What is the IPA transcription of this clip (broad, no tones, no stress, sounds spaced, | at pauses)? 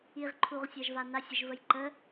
i ʁ ǃʰ u ʁ sʲ a ʒ v a n a sʲ ə ʒ v ə j ǃ ə